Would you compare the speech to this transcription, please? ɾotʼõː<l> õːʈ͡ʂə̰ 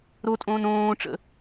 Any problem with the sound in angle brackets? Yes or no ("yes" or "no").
yes